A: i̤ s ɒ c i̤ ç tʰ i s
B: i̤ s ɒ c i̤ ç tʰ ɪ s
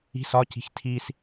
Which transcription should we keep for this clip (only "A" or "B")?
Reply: A